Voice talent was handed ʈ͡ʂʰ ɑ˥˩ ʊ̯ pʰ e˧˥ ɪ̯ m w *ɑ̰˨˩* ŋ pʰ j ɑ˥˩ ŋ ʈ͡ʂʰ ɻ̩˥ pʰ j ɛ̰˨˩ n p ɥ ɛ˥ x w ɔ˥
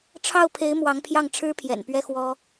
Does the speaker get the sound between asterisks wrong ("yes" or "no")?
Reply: yes